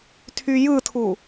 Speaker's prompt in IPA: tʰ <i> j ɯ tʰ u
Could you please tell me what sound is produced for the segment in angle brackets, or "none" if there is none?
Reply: y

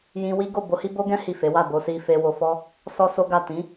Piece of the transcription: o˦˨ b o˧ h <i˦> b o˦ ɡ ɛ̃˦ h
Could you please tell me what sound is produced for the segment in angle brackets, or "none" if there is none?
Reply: i˦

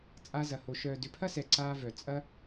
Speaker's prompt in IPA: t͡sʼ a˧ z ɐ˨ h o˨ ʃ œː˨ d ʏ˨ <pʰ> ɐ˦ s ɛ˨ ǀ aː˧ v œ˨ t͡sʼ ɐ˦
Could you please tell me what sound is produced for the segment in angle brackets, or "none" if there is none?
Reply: pʰ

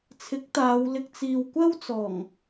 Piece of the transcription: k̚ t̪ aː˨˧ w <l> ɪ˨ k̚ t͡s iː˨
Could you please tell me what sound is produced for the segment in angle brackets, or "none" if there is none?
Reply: l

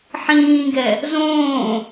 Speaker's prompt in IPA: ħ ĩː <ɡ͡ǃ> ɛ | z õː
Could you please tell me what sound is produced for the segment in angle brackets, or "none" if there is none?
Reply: ɡ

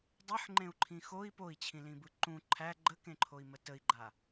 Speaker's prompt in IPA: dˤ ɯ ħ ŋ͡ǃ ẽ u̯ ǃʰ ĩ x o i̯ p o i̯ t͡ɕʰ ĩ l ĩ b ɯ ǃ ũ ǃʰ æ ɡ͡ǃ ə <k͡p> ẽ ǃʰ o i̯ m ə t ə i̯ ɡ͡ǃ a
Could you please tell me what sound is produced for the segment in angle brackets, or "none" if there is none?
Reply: k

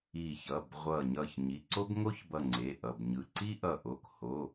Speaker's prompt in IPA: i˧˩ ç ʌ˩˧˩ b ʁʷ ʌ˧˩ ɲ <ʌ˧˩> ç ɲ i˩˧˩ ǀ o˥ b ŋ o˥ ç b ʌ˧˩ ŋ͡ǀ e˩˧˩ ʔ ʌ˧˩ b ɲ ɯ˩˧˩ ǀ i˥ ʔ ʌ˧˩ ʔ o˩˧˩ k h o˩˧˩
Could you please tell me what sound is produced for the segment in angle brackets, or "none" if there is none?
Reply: ʌ˧˩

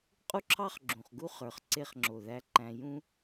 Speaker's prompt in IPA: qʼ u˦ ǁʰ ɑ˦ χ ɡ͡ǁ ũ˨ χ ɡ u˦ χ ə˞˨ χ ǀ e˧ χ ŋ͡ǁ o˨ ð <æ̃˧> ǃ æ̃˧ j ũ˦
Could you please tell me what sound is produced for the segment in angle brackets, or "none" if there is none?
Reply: æ˧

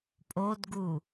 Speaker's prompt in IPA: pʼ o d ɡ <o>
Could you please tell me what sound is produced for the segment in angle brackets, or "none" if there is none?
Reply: u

